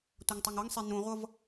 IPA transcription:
tʷ ʌ ŋ tˤ ʌ ŋ ɤ ŋ sˤ e n ũ ʁʷ ʌ v

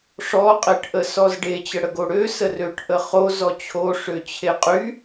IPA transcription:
ʂ ɔ qʼ e ʈ ʔ ə s ɔ z ɖ e t͡ɕ ə ɽ ə ɡ o ɽ ø s ə r ø ʈ ʔ ə χ o z ɔ t͡ɕʰ o ʂ ø t͡ɕʰ e qʼ y

